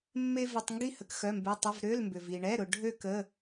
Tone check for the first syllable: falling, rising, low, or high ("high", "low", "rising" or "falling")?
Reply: high